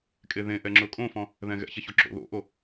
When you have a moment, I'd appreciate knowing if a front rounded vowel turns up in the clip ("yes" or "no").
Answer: no